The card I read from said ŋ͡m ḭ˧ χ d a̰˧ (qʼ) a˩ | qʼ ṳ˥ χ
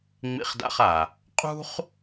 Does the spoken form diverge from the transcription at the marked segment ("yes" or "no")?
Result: yes